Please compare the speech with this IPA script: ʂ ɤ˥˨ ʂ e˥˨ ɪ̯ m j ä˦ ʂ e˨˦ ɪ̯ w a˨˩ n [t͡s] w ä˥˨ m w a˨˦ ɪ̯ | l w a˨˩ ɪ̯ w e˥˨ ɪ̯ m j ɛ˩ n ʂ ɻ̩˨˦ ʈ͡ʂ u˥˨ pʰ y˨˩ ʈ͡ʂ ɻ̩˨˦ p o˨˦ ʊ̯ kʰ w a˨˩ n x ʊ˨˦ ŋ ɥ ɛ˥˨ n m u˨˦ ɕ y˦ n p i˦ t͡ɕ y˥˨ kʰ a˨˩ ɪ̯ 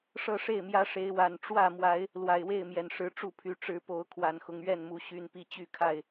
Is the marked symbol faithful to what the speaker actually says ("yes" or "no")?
no